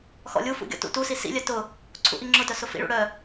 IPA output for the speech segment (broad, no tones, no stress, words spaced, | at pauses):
xɔ̰lʲufṵ ɡʲɔ̰tṵtusi sḭlʲœ tʊ | ǀʰṵʔiŋ͡ǁʊtœ sʊfḭɭṵ ɽœ